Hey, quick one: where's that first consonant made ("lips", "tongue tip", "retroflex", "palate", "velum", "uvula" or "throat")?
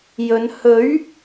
palate